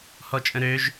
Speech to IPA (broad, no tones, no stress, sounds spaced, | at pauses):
h ɔ t͡ʃʼ ə̃ ɾ ø ʒ